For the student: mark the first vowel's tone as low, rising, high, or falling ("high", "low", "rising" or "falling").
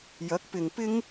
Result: rising